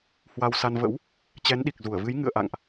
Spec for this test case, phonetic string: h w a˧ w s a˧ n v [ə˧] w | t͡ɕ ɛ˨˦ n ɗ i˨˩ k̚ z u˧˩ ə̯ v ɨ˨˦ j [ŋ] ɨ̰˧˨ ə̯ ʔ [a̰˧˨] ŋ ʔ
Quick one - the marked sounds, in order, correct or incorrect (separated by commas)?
incorrect, correct, correct